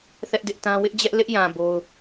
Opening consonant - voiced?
no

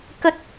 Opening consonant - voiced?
no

